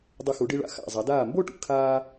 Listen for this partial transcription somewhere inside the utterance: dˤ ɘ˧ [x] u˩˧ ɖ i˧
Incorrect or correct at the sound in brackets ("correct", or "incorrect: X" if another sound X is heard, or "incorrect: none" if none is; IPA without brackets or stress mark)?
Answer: correct